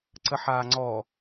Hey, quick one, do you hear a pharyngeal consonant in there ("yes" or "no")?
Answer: yes